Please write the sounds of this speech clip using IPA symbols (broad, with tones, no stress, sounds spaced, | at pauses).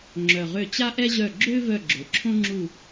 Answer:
ŋ͡ǁ œ˨˩ ʁ ø˦˨ t͡ɕ a˥ ʔ ɛ˥ ʑ œ˦˨ ɡ͡ǁ ø˥ v œ˦˨ ɡ͡ǁ ø˩˧ ǁʰ õ˥ ŋ͡ǁ u˦˨